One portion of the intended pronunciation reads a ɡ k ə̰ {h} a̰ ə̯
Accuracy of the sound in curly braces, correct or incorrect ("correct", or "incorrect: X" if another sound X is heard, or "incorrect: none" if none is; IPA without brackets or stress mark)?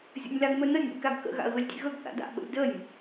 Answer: incorrect: ɣ